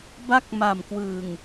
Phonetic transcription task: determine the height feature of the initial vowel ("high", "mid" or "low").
low